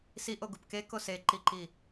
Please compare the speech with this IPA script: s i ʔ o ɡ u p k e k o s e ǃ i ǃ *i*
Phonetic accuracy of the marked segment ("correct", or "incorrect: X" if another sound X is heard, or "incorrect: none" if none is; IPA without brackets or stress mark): correct